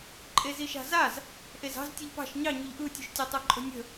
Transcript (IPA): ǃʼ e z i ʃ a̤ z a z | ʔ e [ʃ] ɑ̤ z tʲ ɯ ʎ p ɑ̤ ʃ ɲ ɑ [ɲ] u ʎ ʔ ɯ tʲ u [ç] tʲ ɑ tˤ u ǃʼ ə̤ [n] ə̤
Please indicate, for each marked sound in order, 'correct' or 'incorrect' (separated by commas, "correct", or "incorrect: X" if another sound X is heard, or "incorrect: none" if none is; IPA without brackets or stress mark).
incorrect: z, correct, incorrect: ʃ, incorrect: nʲ